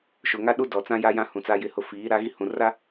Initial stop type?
implosive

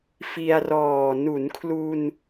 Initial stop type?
aspirated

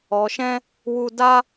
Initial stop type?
plain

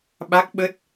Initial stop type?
implosive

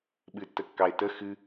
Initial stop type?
implosive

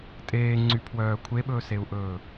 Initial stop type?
ejective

